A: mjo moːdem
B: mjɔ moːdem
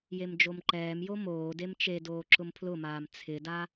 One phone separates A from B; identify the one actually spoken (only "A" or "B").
A